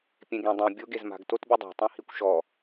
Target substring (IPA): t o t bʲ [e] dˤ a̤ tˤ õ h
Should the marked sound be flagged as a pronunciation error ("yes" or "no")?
no